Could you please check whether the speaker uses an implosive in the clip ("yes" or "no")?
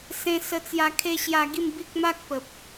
no